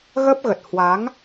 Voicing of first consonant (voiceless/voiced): voiced